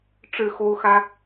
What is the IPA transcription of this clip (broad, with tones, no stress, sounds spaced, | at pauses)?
ʈ͡ʂ ɻ̩˥˩ x o˥ ʊ̯ x ä˥